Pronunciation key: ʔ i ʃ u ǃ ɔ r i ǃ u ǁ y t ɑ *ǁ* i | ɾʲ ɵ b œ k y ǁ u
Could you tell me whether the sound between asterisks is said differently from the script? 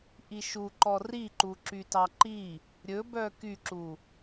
yes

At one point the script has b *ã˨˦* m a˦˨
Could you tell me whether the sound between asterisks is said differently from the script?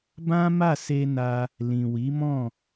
yes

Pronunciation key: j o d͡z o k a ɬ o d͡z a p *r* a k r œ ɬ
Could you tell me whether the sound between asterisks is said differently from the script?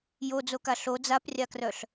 yes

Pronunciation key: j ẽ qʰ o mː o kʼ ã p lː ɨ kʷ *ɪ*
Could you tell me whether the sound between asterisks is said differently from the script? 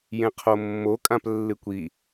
yes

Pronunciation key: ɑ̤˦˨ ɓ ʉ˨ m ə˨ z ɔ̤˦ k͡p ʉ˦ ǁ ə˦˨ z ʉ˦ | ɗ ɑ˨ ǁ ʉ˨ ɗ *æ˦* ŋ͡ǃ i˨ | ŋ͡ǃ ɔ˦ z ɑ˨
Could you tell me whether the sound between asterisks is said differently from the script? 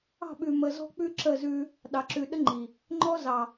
yes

